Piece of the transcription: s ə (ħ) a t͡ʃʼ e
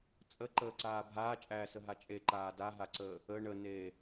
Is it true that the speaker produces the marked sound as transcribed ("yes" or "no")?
no